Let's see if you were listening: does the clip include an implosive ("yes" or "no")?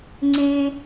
no